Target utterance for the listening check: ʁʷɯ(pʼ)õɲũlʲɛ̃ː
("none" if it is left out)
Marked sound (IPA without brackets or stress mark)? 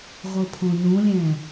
pʰ